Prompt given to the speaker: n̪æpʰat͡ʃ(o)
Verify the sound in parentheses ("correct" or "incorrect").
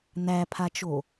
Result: correct